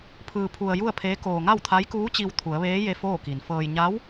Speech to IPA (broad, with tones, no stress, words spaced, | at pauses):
pʰɯː˧pʰu˧ə̯ ju˥˨ə̯pʰeː˧˥ koː˧ ŋa˥˨wt̪ʰa˧˥jkuː˧˥ t͡ɕi˧wt̪ʰu˩˧ə̯ʋeː˧˥je˧ foː˥˨ki˩nfɤː˧j ɲa˧˥w